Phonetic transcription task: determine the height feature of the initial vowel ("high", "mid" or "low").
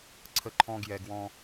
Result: mid